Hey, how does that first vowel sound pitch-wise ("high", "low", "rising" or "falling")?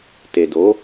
low